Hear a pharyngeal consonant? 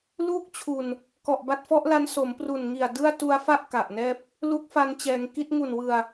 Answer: no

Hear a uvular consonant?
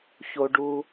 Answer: no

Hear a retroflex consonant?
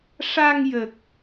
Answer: yes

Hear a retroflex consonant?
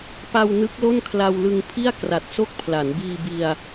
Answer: no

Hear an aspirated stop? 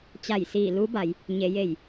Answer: no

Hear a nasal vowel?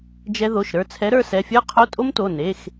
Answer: no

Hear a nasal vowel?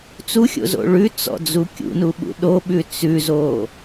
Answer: no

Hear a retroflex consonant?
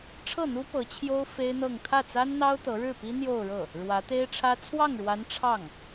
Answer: yes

